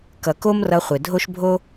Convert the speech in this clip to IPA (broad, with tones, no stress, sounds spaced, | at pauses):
k ʌ˨ k o˦ m r ʌ˧ χʷ e˨ dʱ o˦ ʃ bʱ o˦